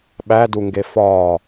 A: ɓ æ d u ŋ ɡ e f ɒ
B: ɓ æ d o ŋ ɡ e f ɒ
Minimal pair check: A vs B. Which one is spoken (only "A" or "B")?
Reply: A